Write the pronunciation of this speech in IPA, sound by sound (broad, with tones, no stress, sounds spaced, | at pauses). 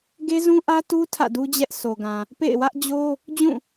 ɡ e˦ z ũ˦ ʔ ä˦ t u˦ tʰ ä̰˦˨ d u˦ d͡ʑ ɛ˦ ʔ sʰ o˨ ɡ ã˨ | p ḛ˦˨ ɪ̯ w ä˦ ʔ d͡ʑ o˦ | d͡ʑ ũ˦˨